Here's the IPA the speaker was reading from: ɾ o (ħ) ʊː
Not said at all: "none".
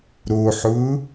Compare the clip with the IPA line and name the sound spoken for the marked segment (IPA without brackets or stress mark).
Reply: ħ